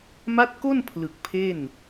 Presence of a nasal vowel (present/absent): absent